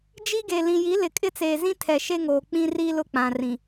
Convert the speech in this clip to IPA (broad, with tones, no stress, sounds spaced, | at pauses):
d͡ʒ i˦ ɡ e˨ l ĩ˨ j i˨˦ l ɪ˨ kʼ ɪ˦ t͡s eː˨ z ĩ˦ tʰ ɛ˨ ʃ e˦ ŋ oː˨ k͡p ĩ˦ r i˦ l ʊ˦ k͡p ã˨ r ĩ˨